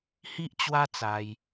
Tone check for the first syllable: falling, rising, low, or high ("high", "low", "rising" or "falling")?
high